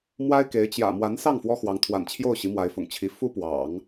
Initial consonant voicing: voiced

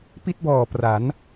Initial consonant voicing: voiceless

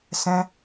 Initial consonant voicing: voiceless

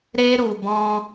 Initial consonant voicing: voiced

